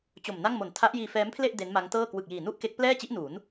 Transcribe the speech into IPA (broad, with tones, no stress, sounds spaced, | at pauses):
t͡ɕ o˨˩ m n a˥˩ ŋ m o˨˩ n tʰ a˦˥ ʔ j iː˧ f ɛː˦˥ m pʰ l e˥˩ ʔ d e˦˥ n m a˦˥ ŋ t ɤː˥˩ k w ɯ˨˩ k̚ j iː˨˩ n u˥˩ ʔ k e˦˥ k̚ p l ɛː˥˩ t͡ɕ i˦˥ ʔ n u˩˦ n